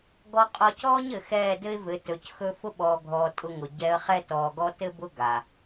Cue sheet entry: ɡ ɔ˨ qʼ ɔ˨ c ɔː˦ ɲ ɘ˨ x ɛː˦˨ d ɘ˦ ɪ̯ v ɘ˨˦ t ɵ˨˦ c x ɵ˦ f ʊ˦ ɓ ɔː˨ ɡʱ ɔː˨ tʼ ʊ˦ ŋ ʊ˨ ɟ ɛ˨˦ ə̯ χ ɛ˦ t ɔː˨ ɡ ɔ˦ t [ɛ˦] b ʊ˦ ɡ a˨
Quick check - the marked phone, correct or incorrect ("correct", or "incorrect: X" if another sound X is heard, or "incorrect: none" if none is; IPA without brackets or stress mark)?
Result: incorrect: ɘ˦